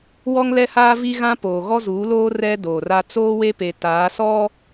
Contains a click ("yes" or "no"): no